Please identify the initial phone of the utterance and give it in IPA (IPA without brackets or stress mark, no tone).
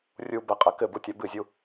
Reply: rʲ